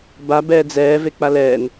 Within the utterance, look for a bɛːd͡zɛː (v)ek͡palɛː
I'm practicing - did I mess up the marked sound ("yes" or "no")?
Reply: no